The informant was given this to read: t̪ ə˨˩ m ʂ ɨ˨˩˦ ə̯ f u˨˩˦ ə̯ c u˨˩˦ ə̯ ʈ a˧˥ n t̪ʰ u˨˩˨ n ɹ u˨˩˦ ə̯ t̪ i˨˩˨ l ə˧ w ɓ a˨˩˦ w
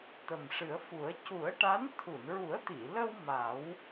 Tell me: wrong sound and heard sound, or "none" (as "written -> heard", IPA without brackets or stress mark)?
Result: ɓ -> m